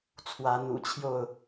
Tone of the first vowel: rising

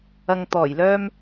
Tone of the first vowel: low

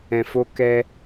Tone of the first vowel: low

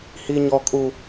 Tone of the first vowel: high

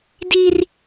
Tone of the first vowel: high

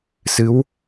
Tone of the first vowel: rising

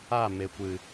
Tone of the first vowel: falling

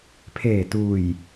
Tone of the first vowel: low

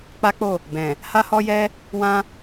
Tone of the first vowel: high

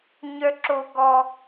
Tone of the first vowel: high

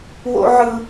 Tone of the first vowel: high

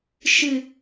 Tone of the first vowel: low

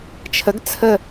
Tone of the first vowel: rising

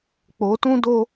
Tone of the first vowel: rising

